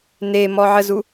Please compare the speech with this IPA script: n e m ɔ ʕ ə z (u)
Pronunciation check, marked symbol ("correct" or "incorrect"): correct